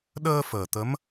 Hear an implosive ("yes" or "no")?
yes